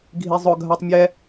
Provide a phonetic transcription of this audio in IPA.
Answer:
ɡʱ i zˤ ʊ ɡʱ a tˤ mʲ ɛ

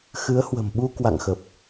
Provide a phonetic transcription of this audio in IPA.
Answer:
x ɨ˨˦ ə̯ h w ə̤˨˩ m ɓ u˧ k w a̰˧˨ ŋ x ə˨˩ p̚

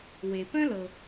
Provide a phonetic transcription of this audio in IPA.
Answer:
w e˩ p œ̃˥ l ɤ˩

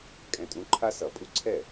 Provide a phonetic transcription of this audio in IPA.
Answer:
kʼ ɛ̃˨˦ tʼ ũ˨˦ ǃʰ a˦ s ʌ˨˩˦ pʼ u˦ ǀʰ ɛ˥˩

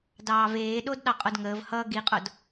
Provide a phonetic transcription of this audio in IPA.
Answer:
d ɑː v eː ɗ o d ɗ ɑ qʼ o d ŋ əː v h ʌ ɡ i qʼ o d

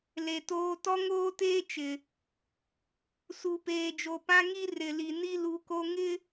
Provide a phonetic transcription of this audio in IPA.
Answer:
l e˨ t oː˦ t ɔ˦ ŋ oː˦ t eː˦ t͡ʃ ɪ˨ | s u˨ p eː˨ d͡ʒ o˨ p ã˦ ŋ i˦ r ɪ˨ l i˨ n i˦ l u˨˦ k o˦ ŋ ɪ˦

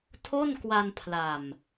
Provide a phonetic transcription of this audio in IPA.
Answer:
tʰ o˥˩ n k w a˧ n pʰ l a˨˩ m

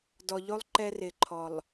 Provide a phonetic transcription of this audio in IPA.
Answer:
d ɔ˨ ʎ o˦ lˠ ǃ ɛ˦ r ɪ˨ ǃʰ ɔ˨ lˠ

